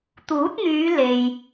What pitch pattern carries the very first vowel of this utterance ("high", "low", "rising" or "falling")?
rising